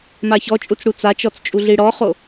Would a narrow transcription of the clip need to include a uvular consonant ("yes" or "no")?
yes